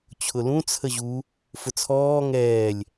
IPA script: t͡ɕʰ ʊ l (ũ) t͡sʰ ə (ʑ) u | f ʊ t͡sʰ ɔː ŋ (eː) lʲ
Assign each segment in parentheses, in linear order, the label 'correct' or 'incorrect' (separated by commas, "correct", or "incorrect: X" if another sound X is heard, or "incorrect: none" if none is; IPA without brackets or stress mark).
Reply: correct, correct, incorrect: ɛː